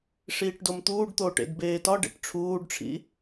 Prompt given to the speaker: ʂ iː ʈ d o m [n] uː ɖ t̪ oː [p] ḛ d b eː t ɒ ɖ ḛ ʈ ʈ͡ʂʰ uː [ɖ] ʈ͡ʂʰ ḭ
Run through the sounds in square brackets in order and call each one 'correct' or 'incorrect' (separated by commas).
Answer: incorrect, incorrect, correct